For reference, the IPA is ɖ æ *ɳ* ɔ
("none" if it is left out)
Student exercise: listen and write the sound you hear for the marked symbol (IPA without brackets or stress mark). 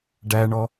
ɳ